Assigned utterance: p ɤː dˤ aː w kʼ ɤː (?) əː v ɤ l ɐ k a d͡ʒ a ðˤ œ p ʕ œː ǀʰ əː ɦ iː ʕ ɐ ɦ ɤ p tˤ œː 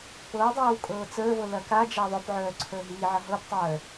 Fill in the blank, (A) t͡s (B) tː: A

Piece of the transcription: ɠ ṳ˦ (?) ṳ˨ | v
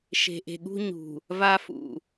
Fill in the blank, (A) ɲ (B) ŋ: A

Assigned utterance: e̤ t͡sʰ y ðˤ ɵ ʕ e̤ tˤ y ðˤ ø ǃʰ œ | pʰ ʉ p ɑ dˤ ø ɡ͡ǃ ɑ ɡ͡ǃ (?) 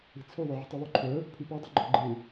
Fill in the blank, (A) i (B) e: B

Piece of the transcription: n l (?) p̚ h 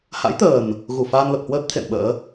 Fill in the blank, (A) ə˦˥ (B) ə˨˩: B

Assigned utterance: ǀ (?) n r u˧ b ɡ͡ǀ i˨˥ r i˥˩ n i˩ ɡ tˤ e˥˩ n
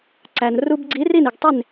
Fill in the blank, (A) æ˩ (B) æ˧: A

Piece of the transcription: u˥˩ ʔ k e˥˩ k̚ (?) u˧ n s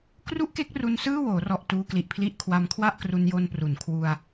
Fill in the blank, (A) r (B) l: A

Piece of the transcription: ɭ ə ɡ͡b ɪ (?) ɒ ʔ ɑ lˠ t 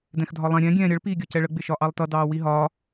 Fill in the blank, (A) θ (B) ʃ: B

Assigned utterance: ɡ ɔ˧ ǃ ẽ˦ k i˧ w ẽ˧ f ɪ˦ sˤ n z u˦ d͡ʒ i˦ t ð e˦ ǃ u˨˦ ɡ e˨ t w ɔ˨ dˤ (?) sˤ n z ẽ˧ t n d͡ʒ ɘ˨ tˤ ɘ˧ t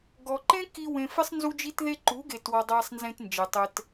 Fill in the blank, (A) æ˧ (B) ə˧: A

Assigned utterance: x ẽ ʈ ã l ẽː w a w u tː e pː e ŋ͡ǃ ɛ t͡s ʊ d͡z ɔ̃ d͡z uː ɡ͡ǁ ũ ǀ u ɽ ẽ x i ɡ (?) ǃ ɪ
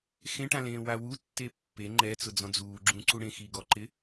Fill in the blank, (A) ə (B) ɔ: B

